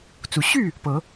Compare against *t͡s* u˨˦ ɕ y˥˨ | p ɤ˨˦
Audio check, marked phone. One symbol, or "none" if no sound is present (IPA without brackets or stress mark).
t͡s